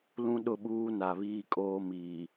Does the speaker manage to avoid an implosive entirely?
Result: no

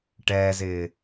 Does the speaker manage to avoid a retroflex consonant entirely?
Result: no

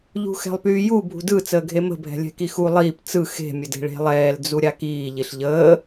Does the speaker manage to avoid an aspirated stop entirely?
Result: yes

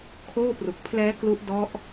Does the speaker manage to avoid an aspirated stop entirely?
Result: no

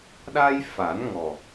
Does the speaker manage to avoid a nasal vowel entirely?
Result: yes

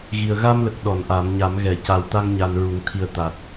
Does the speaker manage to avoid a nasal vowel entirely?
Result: yes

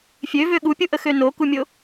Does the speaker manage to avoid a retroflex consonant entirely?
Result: yes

